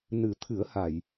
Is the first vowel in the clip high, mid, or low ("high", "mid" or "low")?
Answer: high